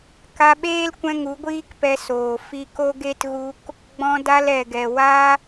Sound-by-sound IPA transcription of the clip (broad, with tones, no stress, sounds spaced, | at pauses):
k a˧ ɓ eː˦ l kʷ ɛ̃˧ ŋ u˨˦ ɡʷ iː˦ k p ɛ˧ s oː˨ f i˧ k o˦ ɡ e˦ t ɣ u˧ k | ɡ͡b ɔ̃˧ d a˧ l ɛ˨ ɡ ɛ˨ w a˦